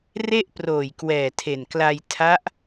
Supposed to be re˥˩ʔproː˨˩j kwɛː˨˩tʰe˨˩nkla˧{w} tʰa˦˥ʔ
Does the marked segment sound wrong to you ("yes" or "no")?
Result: yes